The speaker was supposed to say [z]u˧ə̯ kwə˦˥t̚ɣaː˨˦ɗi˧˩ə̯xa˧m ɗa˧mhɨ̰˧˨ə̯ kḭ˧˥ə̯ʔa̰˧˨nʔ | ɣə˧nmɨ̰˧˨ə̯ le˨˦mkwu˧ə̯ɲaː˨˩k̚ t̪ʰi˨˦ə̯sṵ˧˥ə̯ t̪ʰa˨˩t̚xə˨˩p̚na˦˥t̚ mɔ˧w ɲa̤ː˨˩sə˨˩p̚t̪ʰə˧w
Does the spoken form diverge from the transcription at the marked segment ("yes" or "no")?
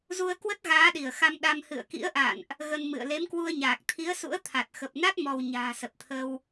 no